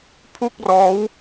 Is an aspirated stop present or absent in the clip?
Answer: present